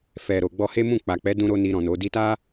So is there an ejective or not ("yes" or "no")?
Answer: no